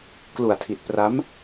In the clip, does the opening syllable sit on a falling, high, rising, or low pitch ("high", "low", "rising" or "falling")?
low